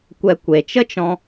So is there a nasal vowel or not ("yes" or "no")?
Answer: yes